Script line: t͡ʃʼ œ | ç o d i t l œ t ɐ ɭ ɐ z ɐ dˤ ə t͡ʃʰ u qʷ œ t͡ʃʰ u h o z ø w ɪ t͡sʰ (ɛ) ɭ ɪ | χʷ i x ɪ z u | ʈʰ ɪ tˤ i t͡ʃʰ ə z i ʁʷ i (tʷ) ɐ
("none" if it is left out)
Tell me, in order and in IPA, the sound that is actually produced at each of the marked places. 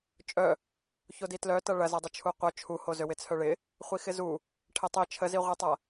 œ, tˤ

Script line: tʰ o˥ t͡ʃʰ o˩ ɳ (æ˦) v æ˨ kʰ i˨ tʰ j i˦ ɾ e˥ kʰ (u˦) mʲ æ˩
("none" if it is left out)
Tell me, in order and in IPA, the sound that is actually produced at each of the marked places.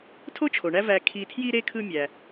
æ˦, ɯ˦

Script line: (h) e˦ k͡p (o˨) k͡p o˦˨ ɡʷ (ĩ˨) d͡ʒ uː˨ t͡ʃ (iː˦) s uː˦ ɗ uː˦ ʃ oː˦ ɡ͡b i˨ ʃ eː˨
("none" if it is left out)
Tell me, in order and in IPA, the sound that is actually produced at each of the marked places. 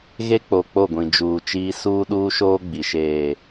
ɣ, o˨, ĩ˨, iː˦

